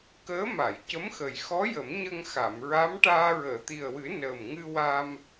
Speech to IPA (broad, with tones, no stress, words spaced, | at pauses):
kəː˧˥ ma˨˩˨jcə˧˥mxə˨˩j xɔ˧˥jə˨˩˦m ɲə˧ŋxa˨˩˨mɹa˧˥mʈaː˧ ɹəː˨˩˨t̪i˨˩ə̯wɨ˨˩˦ nəː˨˩mŋɨ˧wa˧m